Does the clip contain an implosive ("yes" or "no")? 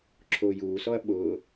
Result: yes